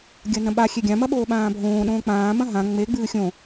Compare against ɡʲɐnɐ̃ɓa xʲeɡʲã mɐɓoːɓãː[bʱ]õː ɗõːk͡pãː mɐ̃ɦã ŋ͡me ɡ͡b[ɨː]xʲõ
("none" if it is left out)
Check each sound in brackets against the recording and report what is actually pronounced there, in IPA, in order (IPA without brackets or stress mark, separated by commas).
bʱ, ɨː